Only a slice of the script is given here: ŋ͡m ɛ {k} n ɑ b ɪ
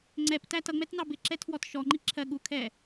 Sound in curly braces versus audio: incorrect: t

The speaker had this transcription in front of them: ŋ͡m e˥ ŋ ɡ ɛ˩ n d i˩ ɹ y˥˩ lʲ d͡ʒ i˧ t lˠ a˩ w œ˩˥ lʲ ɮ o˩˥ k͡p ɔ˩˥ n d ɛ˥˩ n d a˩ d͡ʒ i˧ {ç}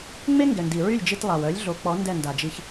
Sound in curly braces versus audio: correct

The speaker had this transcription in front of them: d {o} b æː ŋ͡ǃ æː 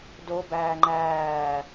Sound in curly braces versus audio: correct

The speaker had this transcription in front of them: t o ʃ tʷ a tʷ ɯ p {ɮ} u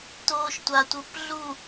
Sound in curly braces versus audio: correct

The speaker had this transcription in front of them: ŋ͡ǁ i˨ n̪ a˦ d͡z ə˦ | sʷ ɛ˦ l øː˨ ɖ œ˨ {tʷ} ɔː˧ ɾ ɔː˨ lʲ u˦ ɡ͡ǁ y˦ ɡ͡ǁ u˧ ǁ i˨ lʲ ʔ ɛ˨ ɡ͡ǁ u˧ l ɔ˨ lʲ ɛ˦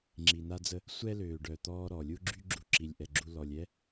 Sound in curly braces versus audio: incorrect: t̪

